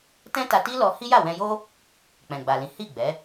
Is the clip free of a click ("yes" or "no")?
yes